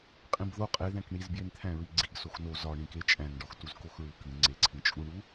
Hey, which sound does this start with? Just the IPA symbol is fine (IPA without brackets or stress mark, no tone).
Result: qʼ